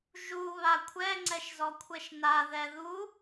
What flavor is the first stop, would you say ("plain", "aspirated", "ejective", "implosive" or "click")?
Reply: aspirated